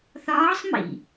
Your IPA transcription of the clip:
θ ɒː sˤ m ḭ

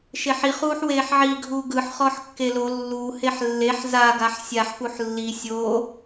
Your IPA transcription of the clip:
ʃ e ħ i χ uː ħ w eː ħ ʕ i ɡʱ uː ɡ ɯ ħ χ ɔː ħ kː e l o lː u h e ħ lː e ħ z a ɡ a ħ sʲ a ħ p u ħ lː i sʲ o

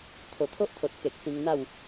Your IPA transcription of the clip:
t̪ʰ o˨˩ t̪ʰ o˦ ʔ t̪ʰ o˨ t̚ k e˨ k̚ s ĩ˧ ŋ n̪ a˥˧ w

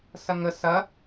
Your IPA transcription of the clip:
s ɐ ŋ ə s ɐ

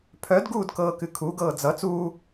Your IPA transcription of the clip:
pʰ œ d ɡ uː d k ɤː k ɨ kʰ u ɡ ɤː d͡z ʌ t͡s uː

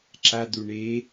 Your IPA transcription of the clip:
ǁ a d̪ u ɳ e

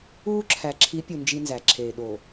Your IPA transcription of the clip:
uː˦ ǁʰ æ˨ ǁʰ i˨˦ pʲ u˨ n d͡ʒ i˦ n z æ˨ ǁʰ eː˨ ɗ oː˨

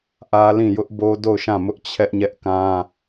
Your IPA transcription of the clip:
ʔ ä˦ l ĩ˦˨ j ʊ˦ ʔ b o˦ d o˦˨ ʊ̯ ʃ ã˦˨ m ʊ˦ ʔ t͡ɕʰ ɛ˦ ʔ ɲ ɛ˦ ʔ k ã˦

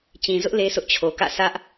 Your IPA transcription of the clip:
t͡ɕ ĩ˨ z ʊ˦ ʔ l e˦ sʰ ʊ˦ ʔ t͡ɕʰ o˨ k ä̰˦˨ s ä˦ ʔ

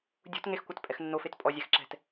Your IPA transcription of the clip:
dʲ ṳ t ŋ e x kʷ ɐ t pʼ ɛ x nː o f e t pʼ ɔ zʲ ɛ x ǁ ɛ̤ t

